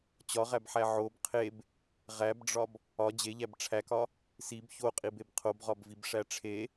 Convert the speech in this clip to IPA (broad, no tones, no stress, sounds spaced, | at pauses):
t͡ɕ ɒ ʁ æ b ħ æ ʕ o b qʰ e b | ʁ æ b ɖ͡ʐ ɒ b | ɒ d͡ʑ e ʎ æ b ʈ͡ʂʰ æ k ɒ | s i b ç o qʼ i b e b qʰ o b ʁ ɒ b v i b ʂ æ ʈ͡ʂʰ e